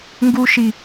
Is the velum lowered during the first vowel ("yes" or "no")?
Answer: no